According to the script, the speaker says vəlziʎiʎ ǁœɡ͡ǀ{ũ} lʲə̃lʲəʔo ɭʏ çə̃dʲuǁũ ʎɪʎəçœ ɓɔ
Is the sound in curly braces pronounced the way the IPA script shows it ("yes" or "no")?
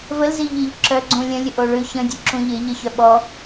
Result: yes